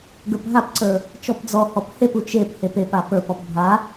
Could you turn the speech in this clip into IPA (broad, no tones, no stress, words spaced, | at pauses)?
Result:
ɡə˞pɦapǀə˞ | t͡ʃɔpd͡zɔhɔp hepu t͡ʃephep epa pə˞pɔp bʱa